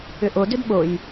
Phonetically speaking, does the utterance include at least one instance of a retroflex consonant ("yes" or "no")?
no